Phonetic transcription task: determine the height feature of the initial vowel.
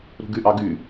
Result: high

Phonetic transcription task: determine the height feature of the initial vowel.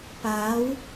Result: low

